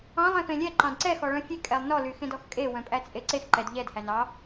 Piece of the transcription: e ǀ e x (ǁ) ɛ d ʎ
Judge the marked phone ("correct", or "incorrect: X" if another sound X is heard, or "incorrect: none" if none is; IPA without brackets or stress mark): incorrect: ǃ